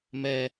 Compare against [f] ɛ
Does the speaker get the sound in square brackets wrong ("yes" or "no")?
yes